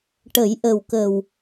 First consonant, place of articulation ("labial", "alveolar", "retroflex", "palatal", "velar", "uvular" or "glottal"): retroflex